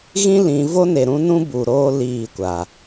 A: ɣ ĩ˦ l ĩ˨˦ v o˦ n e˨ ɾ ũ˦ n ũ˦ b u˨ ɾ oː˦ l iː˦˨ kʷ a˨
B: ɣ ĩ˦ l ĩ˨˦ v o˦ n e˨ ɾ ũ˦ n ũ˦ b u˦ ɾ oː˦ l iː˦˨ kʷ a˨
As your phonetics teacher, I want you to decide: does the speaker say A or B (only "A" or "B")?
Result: A